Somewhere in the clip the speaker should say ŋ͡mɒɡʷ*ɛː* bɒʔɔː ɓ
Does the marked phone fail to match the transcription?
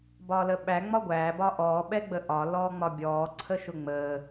yes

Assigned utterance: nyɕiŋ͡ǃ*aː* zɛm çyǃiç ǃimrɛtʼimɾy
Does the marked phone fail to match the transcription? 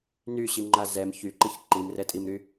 yes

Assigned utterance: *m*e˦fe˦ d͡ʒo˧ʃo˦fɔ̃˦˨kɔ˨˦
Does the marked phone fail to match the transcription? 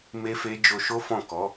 no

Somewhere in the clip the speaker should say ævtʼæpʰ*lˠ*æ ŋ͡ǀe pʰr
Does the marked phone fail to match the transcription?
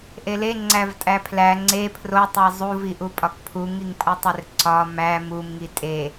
yes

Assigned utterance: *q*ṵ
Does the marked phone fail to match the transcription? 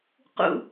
no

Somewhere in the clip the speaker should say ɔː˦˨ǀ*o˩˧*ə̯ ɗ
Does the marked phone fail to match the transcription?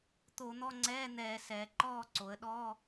no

